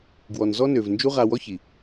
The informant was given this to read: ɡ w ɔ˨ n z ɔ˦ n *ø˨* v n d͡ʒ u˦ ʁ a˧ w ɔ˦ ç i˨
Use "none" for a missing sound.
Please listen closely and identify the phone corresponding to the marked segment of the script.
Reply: ø˨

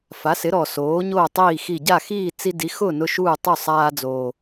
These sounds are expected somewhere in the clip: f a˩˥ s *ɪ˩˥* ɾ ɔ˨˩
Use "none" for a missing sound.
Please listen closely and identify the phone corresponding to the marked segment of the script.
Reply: ɪ˩˥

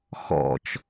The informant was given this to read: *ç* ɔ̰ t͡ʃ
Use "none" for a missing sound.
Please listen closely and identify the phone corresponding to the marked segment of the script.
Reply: x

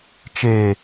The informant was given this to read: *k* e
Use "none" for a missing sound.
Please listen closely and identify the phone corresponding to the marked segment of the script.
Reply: t͡ʃ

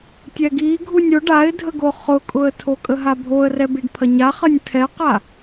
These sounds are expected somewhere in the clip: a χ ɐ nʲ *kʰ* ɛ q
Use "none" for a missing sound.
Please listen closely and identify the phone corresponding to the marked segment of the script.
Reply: tʰ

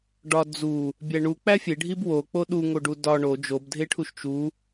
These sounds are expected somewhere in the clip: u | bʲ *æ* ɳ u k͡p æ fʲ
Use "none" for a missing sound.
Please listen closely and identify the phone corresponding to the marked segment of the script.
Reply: æ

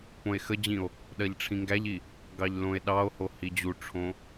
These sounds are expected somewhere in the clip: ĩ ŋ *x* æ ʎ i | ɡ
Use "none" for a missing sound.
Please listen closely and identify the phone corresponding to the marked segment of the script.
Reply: ɡ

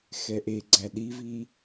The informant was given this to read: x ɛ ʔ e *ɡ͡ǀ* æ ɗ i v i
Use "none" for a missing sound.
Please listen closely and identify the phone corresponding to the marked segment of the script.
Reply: ɡ͡ǀ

